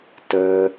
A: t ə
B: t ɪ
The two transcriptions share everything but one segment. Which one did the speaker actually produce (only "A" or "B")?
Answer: A